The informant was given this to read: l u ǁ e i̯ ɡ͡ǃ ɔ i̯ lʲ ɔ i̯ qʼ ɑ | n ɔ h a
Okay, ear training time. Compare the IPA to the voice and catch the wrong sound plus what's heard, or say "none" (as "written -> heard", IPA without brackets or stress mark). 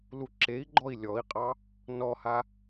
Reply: none